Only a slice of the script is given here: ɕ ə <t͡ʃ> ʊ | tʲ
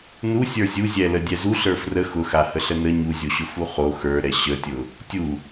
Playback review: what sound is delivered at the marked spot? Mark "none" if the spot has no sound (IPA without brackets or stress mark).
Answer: tʲ